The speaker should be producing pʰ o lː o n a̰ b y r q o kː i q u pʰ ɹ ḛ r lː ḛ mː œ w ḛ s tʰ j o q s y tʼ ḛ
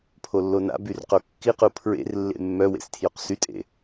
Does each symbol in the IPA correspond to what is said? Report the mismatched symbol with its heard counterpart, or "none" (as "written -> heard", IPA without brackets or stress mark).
none